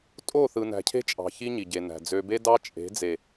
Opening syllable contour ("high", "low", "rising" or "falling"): falling